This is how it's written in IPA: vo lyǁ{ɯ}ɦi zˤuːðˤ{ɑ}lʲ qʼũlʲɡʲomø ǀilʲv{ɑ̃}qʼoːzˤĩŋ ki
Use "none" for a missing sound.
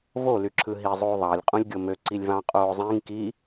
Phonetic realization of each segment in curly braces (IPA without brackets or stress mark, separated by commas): ɯ, ɑ, ɑ̃